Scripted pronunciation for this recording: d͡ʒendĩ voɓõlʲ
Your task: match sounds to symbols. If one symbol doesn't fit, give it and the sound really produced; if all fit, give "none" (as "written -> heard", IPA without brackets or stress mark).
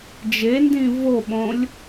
none